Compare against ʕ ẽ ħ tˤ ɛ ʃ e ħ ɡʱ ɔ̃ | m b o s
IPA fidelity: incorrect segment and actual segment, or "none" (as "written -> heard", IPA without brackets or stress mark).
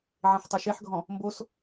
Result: none